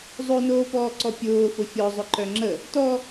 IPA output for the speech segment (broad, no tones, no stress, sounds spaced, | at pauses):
zˤ o n oː p ɔː ǀ ɔ pʲ ʊː f ʊ fʲ ɔ zˤ ʊ ǃ œ ŋ͡ǁ ə | t ɔ